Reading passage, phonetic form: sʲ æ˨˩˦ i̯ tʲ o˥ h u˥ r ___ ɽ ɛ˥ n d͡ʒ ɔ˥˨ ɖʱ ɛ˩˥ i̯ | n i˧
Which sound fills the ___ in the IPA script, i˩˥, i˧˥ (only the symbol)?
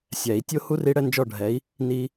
i˧˥